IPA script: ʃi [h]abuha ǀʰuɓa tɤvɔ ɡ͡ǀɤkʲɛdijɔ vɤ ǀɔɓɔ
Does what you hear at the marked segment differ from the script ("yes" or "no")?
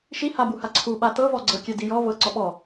no